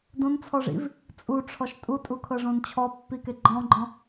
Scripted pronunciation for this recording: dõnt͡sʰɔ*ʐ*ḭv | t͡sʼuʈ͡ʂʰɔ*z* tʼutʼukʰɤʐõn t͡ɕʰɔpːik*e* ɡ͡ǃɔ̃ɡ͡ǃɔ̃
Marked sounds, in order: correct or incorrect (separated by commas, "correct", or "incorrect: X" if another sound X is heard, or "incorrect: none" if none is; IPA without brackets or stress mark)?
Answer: correct, incorrect: ʃ, correct